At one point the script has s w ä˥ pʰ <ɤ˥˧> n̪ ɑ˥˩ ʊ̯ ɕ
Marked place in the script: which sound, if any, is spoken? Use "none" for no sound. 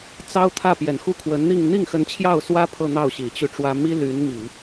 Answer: ɤ˥˧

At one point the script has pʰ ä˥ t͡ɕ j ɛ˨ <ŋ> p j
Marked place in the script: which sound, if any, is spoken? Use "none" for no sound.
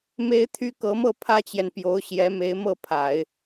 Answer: n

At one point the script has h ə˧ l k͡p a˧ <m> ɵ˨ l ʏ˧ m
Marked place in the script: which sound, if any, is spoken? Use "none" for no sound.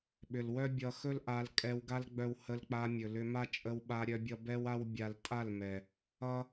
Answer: mʲ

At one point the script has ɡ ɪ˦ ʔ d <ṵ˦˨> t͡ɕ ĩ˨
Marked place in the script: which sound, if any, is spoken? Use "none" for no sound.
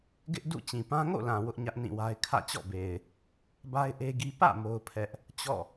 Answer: ṵ˦˨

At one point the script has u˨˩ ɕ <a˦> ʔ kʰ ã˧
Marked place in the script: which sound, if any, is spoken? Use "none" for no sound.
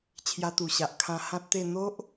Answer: a˨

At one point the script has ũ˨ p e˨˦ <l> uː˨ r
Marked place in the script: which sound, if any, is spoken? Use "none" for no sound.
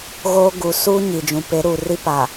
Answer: ɾ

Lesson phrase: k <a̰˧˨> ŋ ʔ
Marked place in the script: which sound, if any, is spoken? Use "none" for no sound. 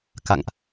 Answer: a̰˧˨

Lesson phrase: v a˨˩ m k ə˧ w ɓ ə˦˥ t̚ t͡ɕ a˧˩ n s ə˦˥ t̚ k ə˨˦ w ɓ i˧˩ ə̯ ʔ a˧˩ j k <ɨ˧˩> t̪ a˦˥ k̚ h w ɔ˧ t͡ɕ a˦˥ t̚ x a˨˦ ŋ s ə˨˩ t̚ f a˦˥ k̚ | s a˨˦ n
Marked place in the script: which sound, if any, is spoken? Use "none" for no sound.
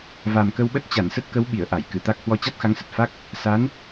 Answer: ɨ˧˩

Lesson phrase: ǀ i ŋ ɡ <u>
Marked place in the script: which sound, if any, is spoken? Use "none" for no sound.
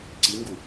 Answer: u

